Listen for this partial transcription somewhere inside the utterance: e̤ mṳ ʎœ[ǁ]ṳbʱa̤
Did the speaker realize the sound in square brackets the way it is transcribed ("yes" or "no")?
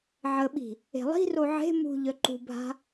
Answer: no